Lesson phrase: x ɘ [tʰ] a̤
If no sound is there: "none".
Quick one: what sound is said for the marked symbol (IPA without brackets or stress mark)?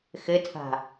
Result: tʰ